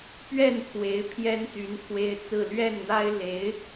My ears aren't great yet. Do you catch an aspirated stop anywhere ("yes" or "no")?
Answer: yes